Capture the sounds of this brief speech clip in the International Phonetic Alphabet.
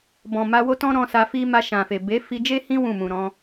b ɔ̃˨ m a˧ w o˦ t ɔ̃˦ ɾ ɔ̃˧ s a˧ f i˦ m a˧ ʃ ã˨ f e˨ b e˨˦ f i˧ d͡ʒ e˦ h ĩ˦ w ũ˦˨ m ũ˨ ɾ ɔ̃˨˦

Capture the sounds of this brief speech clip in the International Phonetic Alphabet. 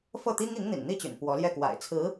f ɤ˥˩ t̪ i˥ ŋ i˧˥ ŋ n̪ ḭ˨˩ n n̪ i˥˩ t͡ɕ y̰˨˩ n p w ɔ˧˥ l j ɛ˥˩ k w a̰˨˩ ɪ̯ t͡sʰ ɹ̩˧˥

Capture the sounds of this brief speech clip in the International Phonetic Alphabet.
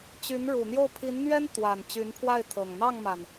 t͡ɕ y˧˥ n ɻ u˨˩ n̪ j o˥˩ ʊ̯ pʰ i˧˥ n n̪ ɥ ɛ˥ n t̪ w a˨˩ n t͡ɕ y˧˥ n pʰ w a˥˩ ɪ̯ t̪ʰ ɤ˨˩ ŋ n̪ ɑ˥˩ ŋ m a˩ n

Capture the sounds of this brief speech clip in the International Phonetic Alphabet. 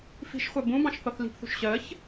f i̤ ʃ χʷ ɜ b ũ b ɑ̃ ʃ θ ɔ θ l i̤ p θ ṳ ʃ ɕ ɜ ç

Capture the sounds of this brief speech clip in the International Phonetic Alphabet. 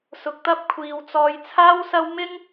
s ʊ˧ k̚ t̪ ɐ˥ p̚ kʷʰ iː˧ w t͡s ɔː˧ j t͡sʰ aː˥ w s ɐ˥ w m ɪ˥ ŋ

